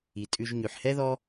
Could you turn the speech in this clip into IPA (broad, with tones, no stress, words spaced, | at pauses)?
i˩tʼʉ˨ʒɲʉ˩ħ hɛ˥ðɔ˦